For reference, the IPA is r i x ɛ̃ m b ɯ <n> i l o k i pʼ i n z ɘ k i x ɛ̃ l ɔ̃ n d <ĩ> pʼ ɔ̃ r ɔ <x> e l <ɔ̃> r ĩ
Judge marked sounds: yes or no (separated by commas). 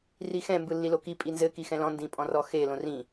no, yes, yes, no